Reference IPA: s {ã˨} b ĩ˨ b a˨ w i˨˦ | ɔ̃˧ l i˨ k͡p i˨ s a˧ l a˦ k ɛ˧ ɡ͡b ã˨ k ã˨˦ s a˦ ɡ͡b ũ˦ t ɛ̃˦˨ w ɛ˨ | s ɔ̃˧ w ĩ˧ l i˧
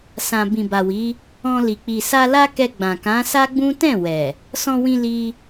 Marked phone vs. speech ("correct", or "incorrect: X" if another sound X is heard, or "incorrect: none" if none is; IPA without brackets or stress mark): correct